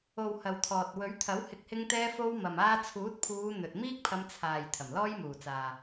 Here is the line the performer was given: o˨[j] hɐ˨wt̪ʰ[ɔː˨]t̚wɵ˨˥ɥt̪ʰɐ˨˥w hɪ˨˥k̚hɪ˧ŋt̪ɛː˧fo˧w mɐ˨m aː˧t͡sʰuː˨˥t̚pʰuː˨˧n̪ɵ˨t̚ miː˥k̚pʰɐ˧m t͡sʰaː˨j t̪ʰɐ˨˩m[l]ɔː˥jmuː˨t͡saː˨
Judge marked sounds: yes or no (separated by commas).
no, yes, yes